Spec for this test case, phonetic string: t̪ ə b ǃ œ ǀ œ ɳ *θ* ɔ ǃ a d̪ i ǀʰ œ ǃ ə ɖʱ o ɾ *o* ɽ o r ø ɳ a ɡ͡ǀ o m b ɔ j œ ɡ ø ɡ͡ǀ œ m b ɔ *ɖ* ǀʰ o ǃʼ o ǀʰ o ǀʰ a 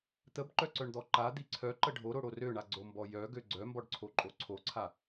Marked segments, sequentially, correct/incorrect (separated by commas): incorrect, correct, correct